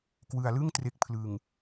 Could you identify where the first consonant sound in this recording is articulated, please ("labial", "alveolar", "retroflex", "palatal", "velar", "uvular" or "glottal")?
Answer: velar